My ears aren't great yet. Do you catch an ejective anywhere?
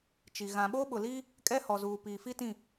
yes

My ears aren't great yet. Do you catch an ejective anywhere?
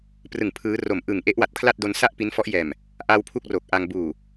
no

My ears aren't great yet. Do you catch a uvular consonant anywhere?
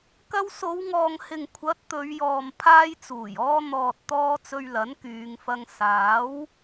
no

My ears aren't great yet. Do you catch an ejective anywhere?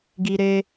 no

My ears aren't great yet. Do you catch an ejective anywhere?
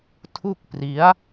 no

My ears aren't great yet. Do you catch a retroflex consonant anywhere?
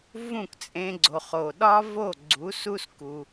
no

